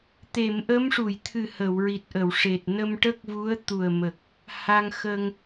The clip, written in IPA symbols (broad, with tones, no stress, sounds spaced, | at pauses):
t̪ e˨˩˨ m ʔ ə˧˥ m ʂ u˨˩˨ j t̪ʰ ɨ˨˩ h ə˨˩˨ w ɹ i˨˩ t̚ ʔ ə˨˩˨ w ʂ e˨˩ t̚ n ə˧ m ʈ ə˦˥ k̚ v u˧˥ ə̯ t̪ u˨˩ ə̯ m ə˨˩ k̚ | h a˧ ŋ x ə˧ ŋ